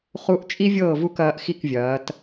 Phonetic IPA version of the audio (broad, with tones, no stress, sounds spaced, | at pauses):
χ u˥ ʔ t͡ʃʼ i˥ vʲ ɤː˥˨ v u˥˨ k ɐː˨˦ ʔ x i˥˨ k vʲ ɐː˨˦ t